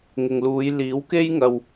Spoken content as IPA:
ŋ ɪ˨ ŋ l uː˨˧ j l iː˨˥ w k e˥ j ŋ ɐ˧ w

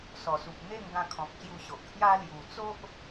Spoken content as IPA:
s ɔ˨˩ s u˨ p̚ n̪ e˥˧ ŋ ɡ ã˧ kʰ ɔ̃˨ k̚ ɕ j u˧ ɕ o˨ ʔ pʰ j a˦ l j u˨˩ t͡s o˦ ʔ

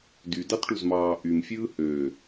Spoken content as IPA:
d y d ɑ t ʈ u z m ɑː ʔ y m fʲ ɯː h ø

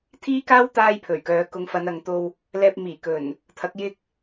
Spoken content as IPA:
t̪ʰ iː˥ k aː˥ w t̪ aː˥ j pʰ ɵ˨˩ ɥ k œː˨˧ k ʊ˨˧ ŋ f ɐ˨˧ n ɐ˨ ŋ t̪ o˧ w | l ɛː˧ p̚ m iː˨˩ k ɵ˨˩ n | t̪ʰ ɐ˨˥ k̚ j ɪ˥ k̚

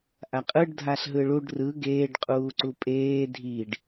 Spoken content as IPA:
ʔ a qʼ ɯ ɖ dʱ a ɬ ɦ ɯ ɭ u ɖ r ɯ ɡ eː ɖ qʼ uː ǀ u pʼ eː dʱ i ɖ

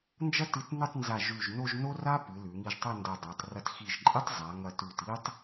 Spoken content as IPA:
n d͡ʒ ɐ˥˧ t ɨ˧ t n ɨ˥˧ tˤ n z a˧˩ ʒ ʉ˧˩ ʒ n o˥˧ ʒ n o˥ r a˥ p ɨ˩˧ l ʉ˩˧ ŋ i˧ ʒ tˤ ɐ˥˧ n d ɐ˧ dˤ a˩˧ tˤ r ɐ˧˩ t x i˧˩ ʒ ǃʼ i˥ tˤ zˤ a˩˧ ŋ ɐ˧˩ t ʉ˧˩ t i˥ tˤ

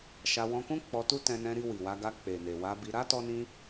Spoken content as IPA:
ʃ a˧ w ɔ̃˧ k ũ˦ k͡p ɔ˧ t u˦ t ɛ̃˧ n ɛ̃˧ ɾ i˧ w i˨ w a˧ ɡ a˧ k͡p e˨ n e˨ w a˧ b i˧ ɾ a˦ t ɔ˧ n ĩ˧

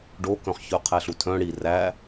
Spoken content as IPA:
ɖ o k œ̃ χ ç œ qʰ æ ɬ u tʰ œ̃ ɽ i r æ

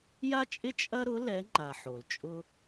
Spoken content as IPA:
j a˦ t͡ʃʼ ɪ˦ t͡ʃʼ ɐ˦ ɾ ʊ˨˦ l ɛ˨˦ ŋ͡ǃ a˩ ħ o˩ l t͡ʃʼ ʊ˦

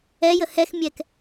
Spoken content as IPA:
ɛ j ə h ɛ x mʲ ɛ k

